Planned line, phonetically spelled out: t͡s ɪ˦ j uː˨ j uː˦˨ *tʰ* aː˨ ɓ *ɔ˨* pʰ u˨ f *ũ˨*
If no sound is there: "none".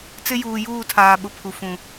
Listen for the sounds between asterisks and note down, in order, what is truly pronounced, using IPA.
tʰ, ʊ˨, ũ˨

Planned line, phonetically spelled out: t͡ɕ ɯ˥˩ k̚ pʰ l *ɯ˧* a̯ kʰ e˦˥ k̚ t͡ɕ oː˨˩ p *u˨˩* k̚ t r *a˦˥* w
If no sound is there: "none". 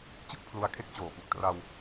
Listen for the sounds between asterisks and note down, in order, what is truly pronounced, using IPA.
u˧, u˨˩, a˧

